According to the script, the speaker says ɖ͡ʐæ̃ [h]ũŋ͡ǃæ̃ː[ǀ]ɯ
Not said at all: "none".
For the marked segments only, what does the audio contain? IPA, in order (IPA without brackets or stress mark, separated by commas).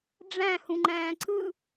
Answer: h, ǀ